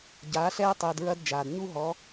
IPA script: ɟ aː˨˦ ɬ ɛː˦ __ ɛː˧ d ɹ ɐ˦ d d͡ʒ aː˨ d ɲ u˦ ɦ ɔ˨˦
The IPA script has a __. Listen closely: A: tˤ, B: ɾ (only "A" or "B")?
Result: A